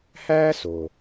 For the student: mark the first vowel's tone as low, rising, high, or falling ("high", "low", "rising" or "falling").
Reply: high